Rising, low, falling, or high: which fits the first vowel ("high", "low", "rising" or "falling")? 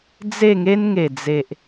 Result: falling